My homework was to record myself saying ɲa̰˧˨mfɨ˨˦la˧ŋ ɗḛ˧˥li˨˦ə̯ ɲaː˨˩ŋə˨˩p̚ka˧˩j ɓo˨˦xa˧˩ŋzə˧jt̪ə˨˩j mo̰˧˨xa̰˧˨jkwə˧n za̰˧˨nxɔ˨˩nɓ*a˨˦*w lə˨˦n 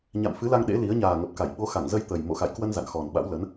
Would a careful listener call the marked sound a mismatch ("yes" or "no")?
yes